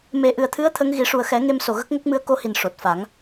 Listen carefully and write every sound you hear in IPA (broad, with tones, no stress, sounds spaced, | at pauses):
m e˨˩˦ ʔ ɨ˨˩ ə̯ t̪ʰ ɨ˧˥ ə̯ t̪ʰ ə˧˥ ŋ ɣ i˨˩˦ ʂ u˨˩ ə̯ x ɛ˨˩˦ ŋ e˧ m s o˨˩ ɣ ə˦˥ k̚ ŋ ə˦˥ k̚ m ɨ˧˥ ə̯ k o˧ h i˨˩ n ʂ o˨˩ t̚ f a˨˩˦ ŋ